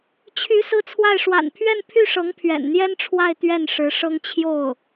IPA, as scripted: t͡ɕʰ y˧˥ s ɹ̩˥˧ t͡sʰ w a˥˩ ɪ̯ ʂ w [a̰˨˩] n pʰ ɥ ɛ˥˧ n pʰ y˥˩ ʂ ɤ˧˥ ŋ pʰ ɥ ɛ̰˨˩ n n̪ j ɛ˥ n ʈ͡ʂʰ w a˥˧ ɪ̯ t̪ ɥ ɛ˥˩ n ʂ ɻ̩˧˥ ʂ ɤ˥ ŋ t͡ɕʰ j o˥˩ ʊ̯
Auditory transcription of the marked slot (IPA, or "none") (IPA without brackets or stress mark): a̰˨˩